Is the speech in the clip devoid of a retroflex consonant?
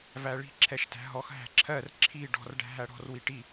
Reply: no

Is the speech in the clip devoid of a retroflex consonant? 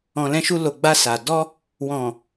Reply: yes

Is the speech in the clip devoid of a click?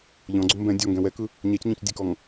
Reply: no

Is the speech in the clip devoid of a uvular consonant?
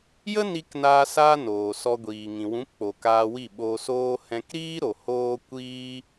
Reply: yes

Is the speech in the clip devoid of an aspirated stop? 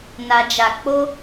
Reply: yes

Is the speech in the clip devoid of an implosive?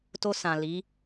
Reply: yes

